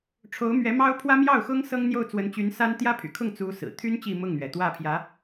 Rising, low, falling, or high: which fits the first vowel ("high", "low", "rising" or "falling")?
rising